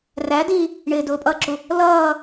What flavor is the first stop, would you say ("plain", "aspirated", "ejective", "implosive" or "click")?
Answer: plain